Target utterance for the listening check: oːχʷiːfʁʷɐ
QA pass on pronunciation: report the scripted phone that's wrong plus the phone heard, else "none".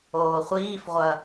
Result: none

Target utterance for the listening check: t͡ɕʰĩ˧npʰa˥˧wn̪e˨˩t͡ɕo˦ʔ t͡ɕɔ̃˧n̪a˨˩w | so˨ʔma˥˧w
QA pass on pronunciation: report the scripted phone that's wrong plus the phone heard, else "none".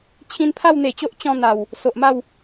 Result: none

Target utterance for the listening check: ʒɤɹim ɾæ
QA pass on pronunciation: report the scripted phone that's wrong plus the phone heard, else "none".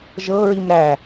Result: none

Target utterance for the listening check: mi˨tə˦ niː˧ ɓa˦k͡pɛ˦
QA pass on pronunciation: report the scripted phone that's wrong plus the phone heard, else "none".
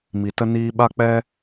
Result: none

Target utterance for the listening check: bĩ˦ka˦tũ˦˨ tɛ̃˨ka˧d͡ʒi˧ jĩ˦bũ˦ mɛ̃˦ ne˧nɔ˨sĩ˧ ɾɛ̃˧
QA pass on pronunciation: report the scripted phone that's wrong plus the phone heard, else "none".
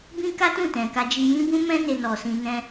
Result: ɾ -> n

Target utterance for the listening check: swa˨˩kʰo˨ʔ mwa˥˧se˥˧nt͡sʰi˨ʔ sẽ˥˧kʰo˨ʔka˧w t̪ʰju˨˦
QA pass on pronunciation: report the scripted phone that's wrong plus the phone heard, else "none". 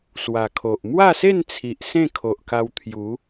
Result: none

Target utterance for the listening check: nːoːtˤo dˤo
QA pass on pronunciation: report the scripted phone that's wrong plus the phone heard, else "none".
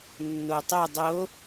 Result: oː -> o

